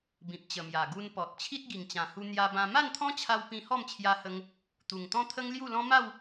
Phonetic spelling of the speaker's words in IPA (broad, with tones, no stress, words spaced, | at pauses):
bĩ˨p̚t͡ɕə˨˩mja˨˩ ɡu˧npɔ˨t̚ t͡ɕʰi˦t̚ɡi˨˩ŋt͡ɕã˨˩hu˧ n̪ja˧bã˧ ma˥˧nt̪ʰɔ̃˦t͡ɕʰa˧w pĩ˧hɔ˥˧mt͡ɕʰja˧hə˧ŋ | t̪u˨˩ŋt̪ɔ̃˦t̪ʰə˦ŋ lju˥˧lɔ̃˦ ma˥˧w